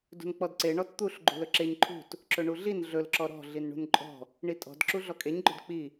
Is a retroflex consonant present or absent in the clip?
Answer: present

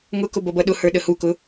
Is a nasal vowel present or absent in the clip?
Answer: absent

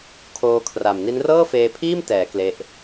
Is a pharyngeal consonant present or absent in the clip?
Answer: absent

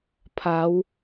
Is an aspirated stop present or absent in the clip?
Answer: present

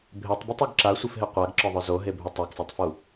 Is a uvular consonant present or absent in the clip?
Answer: present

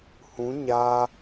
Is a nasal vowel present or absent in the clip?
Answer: present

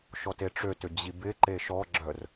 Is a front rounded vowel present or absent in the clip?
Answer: present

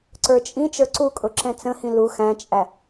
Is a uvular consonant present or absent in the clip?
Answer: absent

